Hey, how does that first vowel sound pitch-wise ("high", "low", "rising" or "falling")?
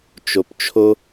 low